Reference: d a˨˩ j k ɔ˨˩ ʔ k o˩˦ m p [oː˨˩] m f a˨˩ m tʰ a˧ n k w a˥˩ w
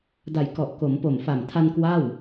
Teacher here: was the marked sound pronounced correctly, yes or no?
no